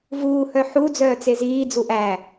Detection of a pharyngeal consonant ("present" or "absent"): present